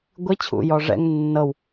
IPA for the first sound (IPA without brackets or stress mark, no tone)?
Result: ɡʷ